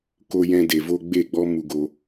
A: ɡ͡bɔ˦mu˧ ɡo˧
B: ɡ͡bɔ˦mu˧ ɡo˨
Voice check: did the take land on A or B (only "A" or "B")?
A